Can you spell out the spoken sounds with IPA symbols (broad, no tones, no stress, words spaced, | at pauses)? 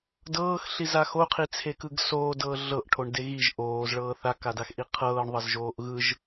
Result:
dɤːxɬiza xoqʰit͡sʰekɯɡ soːdɤː ɮɤʔʈʰoɳde ɣiʒ ʔoːzɭɤː θakadaxʔi qʰɤːɳðˤɤzʒoːʔ ɣɯʒ